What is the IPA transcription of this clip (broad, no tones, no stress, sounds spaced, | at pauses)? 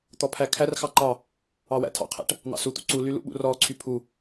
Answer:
t̪ ɔ pʰ æ kʰ æ r x ɑ ǃ ɑ | ɑ w æ̰ tʰ ɑ̰ qʰ æ̰ ʈ | n̪ ɑ̰ s u t̪ ṵ ǀ u l y l ṵ ɓ ṵ r ɔ ǀʰ y pʰ u